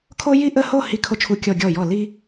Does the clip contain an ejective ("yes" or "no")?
no